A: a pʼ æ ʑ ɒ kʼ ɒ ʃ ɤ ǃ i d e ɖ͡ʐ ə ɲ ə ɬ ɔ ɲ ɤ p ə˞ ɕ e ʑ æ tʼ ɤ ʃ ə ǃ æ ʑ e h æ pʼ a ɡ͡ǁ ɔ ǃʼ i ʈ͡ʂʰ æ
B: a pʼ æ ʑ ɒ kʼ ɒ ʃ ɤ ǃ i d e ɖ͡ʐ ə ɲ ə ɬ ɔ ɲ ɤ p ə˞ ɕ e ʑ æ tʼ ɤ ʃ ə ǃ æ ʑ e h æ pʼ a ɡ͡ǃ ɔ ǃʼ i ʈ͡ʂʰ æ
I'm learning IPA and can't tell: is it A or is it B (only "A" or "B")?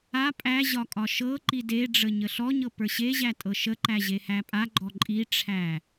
B